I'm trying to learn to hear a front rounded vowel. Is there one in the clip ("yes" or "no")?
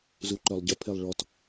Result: yes